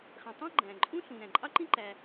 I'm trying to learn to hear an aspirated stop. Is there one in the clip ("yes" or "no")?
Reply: no